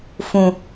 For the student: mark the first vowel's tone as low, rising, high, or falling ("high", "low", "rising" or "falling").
low